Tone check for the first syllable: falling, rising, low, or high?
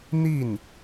falling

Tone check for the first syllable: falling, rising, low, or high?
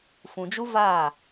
low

